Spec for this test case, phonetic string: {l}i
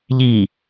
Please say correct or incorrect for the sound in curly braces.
incorrect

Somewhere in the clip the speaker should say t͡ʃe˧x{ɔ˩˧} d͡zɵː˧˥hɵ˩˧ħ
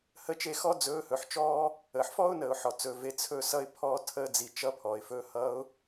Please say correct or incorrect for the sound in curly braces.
incorrect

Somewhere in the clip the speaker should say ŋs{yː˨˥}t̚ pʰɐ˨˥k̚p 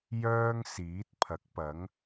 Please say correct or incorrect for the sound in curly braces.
incorrect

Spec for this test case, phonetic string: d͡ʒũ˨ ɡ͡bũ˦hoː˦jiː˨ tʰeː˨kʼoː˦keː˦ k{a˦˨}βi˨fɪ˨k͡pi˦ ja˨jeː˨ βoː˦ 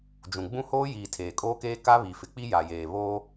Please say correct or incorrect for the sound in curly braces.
incorrect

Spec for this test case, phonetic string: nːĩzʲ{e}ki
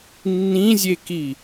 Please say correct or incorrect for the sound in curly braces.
correct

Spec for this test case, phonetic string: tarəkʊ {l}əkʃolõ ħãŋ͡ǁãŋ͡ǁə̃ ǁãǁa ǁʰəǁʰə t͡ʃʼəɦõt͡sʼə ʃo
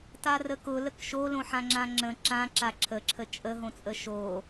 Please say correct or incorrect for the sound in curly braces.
correct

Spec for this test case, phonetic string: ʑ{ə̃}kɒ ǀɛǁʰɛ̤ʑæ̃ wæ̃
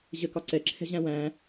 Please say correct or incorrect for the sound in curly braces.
incorrect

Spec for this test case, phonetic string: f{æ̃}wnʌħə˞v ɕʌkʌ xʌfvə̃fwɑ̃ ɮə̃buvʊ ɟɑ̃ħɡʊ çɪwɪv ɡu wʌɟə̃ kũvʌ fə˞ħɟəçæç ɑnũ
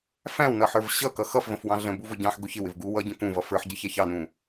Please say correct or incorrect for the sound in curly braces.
correct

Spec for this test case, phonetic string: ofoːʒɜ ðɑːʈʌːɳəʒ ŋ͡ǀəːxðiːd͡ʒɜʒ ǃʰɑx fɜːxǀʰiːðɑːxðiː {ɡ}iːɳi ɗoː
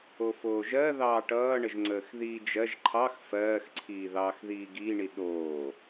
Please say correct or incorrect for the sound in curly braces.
correct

